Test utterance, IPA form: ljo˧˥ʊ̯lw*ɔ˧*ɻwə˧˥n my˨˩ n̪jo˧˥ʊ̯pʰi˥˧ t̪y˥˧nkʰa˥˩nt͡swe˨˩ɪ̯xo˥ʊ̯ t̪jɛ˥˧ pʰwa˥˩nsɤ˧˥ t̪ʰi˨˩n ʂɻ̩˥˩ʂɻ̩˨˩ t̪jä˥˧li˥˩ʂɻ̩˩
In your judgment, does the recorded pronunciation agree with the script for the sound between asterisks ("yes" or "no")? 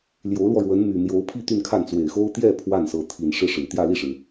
yes